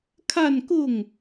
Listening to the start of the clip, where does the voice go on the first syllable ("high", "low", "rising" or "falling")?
falling